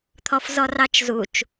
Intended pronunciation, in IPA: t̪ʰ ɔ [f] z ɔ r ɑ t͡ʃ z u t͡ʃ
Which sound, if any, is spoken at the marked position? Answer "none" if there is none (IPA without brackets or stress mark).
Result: f